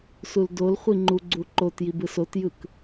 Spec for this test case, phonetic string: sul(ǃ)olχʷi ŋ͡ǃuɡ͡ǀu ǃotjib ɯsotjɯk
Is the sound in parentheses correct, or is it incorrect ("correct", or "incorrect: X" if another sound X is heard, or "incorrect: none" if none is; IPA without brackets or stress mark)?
incorrect: d